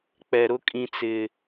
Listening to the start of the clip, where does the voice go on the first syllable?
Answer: low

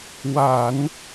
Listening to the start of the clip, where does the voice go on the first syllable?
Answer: low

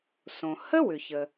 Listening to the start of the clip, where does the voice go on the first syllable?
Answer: low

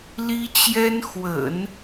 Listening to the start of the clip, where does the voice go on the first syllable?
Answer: high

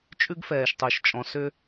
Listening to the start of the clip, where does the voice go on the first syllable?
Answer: high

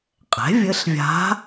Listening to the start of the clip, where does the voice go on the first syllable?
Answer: rising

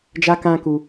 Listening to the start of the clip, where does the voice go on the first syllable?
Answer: high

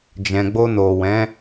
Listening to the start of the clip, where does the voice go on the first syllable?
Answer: low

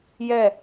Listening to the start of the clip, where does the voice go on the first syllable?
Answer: falling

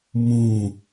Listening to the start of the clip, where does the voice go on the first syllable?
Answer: falling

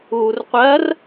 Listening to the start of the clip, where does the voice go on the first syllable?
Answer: low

